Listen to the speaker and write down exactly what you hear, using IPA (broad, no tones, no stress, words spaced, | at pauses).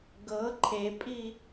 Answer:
ɡɤ ǃʰepʼi